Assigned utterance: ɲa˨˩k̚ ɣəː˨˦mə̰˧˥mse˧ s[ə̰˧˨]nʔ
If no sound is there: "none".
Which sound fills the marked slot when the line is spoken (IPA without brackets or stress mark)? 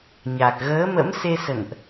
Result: ə̰˧˨